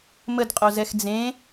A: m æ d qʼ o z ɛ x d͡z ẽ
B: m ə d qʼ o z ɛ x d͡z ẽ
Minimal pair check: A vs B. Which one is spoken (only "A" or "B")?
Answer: B